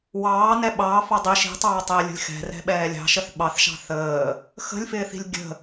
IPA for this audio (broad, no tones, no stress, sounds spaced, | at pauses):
w ɑː n ɛ ɓ ɑː f ɑ dˤ i ʃ i̤ tˤ ɑː tˤ ɪː lʲ ə̤ lʲ x ɛ̤ r ɛ̤ ɓ ɛː lʲ ɑ̤ ʃ ə θ ɓ ɑ θ ʃ ɑ̤ θ əː | x ə̤ lʲ f ɪː θ i̤ lʲ ɡʲ ə̤